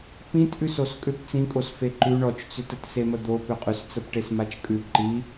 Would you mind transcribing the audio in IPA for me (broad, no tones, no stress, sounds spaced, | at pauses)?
p ĩ t ʔ ʉ s o s kʼ ʏ p t͡s ĩ kʼ o s f e ǃ ʉ ɳ ɔ t͡ʃ t͡s ʏ t ə t s e m ə d̪ o p ʏ qʼ ʉ s t͡s ə p ʈ e s m a t͡ʃ kʼ ʉ ǃ i